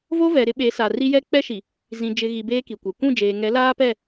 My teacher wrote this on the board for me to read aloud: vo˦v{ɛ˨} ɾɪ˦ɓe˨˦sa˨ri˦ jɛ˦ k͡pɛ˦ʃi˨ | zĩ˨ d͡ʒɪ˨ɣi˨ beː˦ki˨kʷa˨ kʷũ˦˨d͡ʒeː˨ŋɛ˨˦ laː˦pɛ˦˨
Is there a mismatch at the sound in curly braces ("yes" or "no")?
no